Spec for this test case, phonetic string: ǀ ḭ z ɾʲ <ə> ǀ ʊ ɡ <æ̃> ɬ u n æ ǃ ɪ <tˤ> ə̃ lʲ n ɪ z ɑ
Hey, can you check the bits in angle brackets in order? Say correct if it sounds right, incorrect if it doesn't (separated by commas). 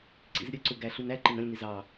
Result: correct, incorrect, incorrect